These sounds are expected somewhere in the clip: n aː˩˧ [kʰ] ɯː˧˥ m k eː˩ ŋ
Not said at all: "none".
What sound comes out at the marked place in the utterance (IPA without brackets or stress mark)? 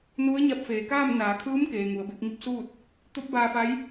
kʰ